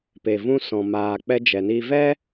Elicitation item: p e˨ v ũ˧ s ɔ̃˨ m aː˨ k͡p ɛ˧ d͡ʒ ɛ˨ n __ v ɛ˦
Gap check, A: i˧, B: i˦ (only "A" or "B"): A